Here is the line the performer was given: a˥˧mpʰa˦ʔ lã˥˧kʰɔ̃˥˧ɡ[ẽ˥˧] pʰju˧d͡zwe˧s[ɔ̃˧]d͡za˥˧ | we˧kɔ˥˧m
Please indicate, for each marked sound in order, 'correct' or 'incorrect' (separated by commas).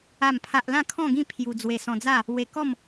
incorrect, correct